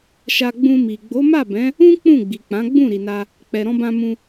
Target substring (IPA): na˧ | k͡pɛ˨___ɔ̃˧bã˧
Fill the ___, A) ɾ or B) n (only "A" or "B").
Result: A